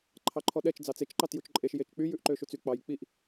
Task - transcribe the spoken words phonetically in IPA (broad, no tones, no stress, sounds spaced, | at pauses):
ǃʰ ɑ ǃʰ ɔ ɗ ɛ t͡ʃ d͡z ɑ t͡s e t͡ʃ ǃ ɑ t j u t͡ʃ ǃʼ e ʃ j e t͡ʃ k͡p y j ʉ ʔ ǃ ø ʃ u t͡s y k͡p ɑ j k͡p i ʔ